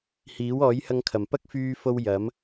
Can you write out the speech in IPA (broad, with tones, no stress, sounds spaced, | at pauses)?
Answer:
h iː˨˥ w ɔː˨˥ j h ɐ˧ ŋ kʰ ɐ˨˩ m p ɐ˥ k̚ f yː˧ f o˧ w j ɐ˨˥ m